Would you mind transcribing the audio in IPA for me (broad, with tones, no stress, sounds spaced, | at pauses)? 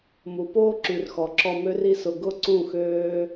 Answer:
m u˨ p oː˦ ǁ y˨ r x ɔ˨ ǁ ɔ˧ m ø˦ r i˦ s ʊ˧ ɡ ʊ˦˨ ǀ ũ˦˨ x øː˦